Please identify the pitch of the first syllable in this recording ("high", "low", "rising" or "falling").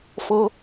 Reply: high